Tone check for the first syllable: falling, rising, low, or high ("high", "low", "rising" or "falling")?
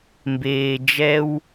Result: low